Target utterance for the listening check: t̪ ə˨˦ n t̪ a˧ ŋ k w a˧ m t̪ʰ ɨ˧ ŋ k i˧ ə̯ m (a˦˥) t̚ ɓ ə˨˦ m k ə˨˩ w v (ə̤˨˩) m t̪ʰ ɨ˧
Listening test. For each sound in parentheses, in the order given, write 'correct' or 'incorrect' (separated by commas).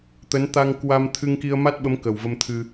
correct, incorrect